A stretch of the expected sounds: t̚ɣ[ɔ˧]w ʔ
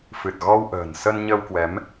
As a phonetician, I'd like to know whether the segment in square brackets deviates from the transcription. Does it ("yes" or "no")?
no